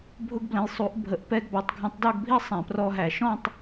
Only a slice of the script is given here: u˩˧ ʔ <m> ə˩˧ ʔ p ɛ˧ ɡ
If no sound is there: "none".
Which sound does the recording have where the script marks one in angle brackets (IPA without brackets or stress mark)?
bʱ